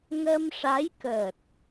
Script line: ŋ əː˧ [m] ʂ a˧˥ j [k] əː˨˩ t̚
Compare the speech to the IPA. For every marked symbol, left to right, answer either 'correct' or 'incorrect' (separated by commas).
correct, correct